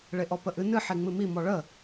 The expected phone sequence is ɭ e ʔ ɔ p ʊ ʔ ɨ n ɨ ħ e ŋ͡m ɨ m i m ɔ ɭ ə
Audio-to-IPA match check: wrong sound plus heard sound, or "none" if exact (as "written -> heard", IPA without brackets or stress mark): ʊ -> ə